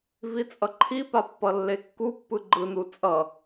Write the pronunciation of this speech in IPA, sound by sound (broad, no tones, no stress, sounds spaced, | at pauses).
v i t͡sʼ ʌ ǃʰ i p a pː ʌ lː e kː u pː ɯ ɡ͡ǃ ɯ n u t͡sʼ ʌ